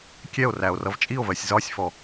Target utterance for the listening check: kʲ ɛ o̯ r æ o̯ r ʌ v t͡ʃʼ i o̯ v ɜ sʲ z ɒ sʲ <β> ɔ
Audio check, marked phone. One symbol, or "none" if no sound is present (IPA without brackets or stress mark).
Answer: f